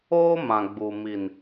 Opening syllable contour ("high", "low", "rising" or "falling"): high